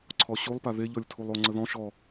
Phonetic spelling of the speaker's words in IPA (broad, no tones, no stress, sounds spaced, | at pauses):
ǀʰ ɔ ɕ u lˠ p a ð e ʎ ɔ lʲ tʰ u lˠ o ŋ͡ǀ ə ð ɔ̃ ʃ ɔ